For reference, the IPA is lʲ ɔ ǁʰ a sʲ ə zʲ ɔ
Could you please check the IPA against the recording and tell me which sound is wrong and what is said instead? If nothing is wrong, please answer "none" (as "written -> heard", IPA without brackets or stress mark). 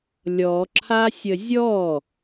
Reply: none